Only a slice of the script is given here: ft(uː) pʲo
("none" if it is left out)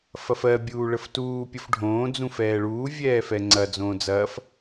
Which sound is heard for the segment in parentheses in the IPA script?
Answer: uː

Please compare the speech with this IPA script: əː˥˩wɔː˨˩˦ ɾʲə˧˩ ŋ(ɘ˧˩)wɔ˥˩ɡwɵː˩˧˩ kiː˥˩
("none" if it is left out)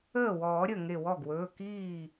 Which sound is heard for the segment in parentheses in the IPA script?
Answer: e˧˩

